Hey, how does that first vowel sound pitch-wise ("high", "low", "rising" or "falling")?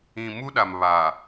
low